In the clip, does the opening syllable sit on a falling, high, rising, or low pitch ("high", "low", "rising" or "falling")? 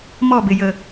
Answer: falling